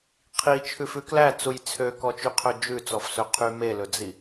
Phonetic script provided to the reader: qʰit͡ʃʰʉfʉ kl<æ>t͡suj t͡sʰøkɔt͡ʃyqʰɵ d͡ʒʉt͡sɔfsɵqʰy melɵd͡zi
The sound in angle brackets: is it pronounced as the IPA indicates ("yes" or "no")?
yes